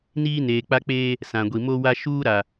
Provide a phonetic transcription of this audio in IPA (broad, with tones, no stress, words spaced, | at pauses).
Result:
niː˦neː˨k͡pa˦k͡peː˦ | sã˨ɡʷi˨mo˦wa˦ ʃuː˦ɾa˨